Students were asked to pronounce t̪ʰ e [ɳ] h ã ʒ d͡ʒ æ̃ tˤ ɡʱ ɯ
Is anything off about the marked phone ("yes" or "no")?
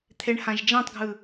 no